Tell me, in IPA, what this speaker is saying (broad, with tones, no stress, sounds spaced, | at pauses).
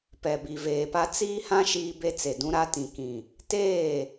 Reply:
p ɛ˨ b i˨ v eː˨ p a˦ t͡s iː˦ h ã˦ ʃ iː˦ b e˦ t͡s e˨ d ũ˦ ɾ a˦ t ĩ˨ k ĩ˨ | t eː˦˨